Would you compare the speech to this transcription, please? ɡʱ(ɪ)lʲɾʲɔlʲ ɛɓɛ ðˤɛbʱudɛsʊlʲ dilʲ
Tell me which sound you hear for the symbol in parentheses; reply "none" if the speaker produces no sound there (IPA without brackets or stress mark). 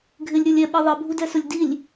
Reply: ɪ